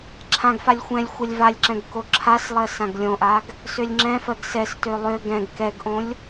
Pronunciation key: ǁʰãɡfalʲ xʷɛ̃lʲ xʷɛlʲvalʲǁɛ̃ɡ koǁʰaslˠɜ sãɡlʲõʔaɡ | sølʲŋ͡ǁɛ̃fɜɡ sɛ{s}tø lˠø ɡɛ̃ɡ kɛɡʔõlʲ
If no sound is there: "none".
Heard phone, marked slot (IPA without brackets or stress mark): s